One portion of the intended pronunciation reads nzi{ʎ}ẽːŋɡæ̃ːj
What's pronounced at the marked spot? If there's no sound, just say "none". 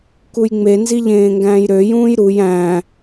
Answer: ʎ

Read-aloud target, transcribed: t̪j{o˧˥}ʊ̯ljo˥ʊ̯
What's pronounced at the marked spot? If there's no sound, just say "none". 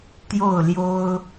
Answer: o˥˩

